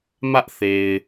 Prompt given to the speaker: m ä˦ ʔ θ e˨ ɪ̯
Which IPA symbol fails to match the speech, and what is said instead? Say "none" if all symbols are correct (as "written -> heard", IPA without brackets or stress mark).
none